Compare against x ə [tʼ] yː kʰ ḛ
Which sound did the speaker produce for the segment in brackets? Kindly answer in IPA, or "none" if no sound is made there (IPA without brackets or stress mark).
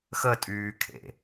tʼ